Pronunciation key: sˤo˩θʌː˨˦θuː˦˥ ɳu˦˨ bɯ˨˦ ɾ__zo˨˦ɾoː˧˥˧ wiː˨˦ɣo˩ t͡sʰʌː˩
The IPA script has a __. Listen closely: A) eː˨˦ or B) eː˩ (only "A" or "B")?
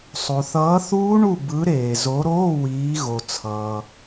B